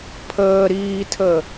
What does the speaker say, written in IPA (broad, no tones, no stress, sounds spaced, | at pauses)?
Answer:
pʰ əː ɾ iː tʰ ə